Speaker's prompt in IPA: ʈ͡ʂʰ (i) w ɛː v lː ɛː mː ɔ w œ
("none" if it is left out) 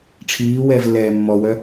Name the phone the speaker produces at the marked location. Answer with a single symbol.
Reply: iː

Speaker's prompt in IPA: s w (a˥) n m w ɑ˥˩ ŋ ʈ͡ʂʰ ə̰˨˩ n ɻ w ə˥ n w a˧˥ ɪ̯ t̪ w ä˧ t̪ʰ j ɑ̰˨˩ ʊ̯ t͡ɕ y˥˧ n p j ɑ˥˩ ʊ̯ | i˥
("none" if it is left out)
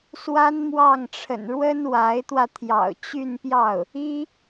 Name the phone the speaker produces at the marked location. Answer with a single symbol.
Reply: a˥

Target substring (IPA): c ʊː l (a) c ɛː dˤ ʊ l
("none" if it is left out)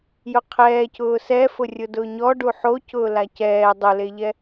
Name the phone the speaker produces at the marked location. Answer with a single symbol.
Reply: a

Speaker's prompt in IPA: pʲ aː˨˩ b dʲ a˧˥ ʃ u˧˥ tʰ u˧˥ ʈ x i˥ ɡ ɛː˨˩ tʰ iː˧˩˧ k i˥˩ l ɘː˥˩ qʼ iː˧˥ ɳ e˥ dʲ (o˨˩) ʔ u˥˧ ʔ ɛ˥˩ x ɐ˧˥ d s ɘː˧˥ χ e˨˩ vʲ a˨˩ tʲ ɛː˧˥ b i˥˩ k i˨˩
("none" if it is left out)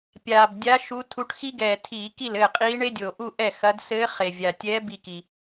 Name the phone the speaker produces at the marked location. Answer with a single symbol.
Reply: o˨˩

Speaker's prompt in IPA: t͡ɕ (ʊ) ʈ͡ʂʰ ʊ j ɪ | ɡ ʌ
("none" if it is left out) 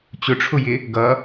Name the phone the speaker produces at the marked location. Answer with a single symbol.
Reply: ʊ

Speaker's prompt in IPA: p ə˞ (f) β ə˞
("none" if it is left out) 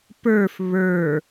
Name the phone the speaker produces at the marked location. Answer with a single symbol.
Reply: f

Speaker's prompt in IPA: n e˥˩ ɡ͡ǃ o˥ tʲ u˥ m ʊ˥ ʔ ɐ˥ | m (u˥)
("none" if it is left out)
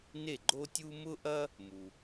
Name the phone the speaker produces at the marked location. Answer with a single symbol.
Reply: u˩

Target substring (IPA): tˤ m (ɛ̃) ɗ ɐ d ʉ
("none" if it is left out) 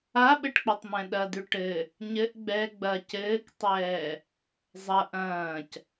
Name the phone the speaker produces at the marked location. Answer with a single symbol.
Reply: ɛ̃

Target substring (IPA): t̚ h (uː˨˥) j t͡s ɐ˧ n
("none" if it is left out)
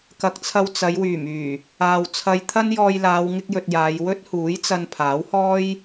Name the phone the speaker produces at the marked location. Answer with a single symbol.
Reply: uː˨˥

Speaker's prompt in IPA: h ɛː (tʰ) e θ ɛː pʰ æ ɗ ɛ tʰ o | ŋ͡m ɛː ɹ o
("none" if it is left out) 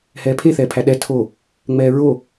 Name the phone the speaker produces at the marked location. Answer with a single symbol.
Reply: pʰ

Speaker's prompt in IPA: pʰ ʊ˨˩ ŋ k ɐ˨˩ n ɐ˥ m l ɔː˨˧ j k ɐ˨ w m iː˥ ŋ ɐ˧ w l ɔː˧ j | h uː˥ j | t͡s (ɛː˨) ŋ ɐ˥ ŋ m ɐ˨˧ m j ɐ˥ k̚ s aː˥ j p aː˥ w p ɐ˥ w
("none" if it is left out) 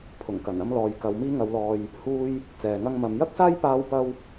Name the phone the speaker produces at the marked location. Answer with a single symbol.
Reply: ɛː˨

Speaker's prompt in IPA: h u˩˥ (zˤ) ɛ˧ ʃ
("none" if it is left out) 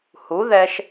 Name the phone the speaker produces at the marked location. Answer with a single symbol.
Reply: ð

